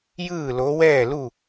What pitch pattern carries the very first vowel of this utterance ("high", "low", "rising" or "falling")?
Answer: falling